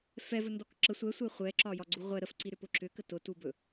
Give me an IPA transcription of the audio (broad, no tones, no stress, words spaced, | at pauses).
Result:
fɛvɵndɔk ǁə sʷɛsʷɛ χʷɛǁɒjɒɡ͡ǀu ʁʷɛ ɾəfǀiɾʏpʊ ǁʏkə tʊtubɵ